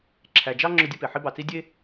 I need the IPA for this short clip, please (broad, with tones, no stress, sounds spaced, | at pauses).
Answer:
ǁʰ æ˨ d͡ʒ ɑ˦ ŋ͡ǁ ʊ˦ dʲ ɐ˦ p e˨ ħ i˦ b ɑ˨ t͡s i˦ dʲ e˦